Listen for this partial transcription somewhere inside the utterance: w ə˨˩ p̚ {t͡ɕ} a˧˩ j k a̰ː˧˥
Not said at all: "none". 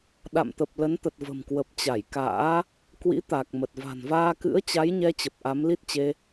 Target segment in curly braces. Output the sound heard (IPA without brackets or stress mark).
t͡ɕ